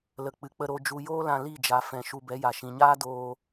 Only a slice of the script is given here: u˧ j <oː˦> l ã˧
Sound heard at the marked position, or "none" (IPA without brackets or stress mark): oː˦